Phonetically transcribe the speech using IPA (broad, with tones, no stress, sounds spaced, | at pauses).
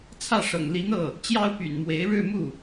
t͡sʰ ä˥˩ ʂ ɤ̰˨˩ ŋ l i˧˥ n̪ ɤ˥˩ | t͡ɕ j ɑ˥ ʊ̯ p y̰˨˩ n m w e˧˥ ɪ̯ ɻ ɻ̩˥˧ m u˥˩